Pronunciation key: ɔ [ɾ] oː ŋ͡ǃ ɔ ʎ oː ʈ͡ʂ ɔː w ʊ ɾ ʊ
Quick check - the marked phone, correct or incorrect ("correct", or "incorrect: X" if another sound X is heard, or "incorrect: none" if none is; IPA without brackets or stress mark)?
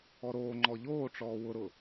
correct